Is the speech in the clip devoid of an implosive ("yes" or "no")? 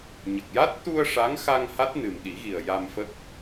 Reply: no